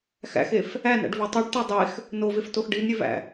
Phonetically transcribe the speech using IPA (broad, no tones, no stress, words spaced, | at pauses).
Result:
xæ̰xef | ænæ̰ɖvo tˤuɖte dˤex | noveftox ɖinɾʲevæ̰